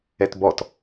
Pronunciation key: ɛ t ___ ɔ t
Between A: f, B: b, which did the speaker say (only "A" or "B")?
B